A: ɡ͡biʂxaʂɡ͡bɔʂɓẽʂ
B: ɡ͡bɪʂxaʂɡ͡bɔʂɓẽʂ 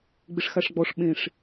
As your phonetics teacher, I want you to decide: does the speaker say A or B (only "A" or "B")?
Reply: B